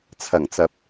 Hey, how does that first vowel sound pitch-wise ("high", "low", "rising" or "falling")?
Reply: low